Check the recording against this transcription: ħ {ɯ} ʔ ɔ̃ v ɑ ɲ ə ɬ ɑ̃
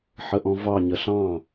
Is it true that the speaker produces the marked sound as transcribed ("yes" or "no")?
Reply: no